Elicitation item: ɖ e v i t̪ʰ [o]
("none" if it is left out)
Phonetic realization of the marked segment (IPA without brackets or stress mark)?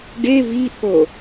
o